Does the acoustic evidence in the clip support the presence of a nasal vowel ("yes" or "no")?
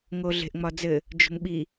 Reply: no